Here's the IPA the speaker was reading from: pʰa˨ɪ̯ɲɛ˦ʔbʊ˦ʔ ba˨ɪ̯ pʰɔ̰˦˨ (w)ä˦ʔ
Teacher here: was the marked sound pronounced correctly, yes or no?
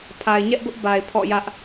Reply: no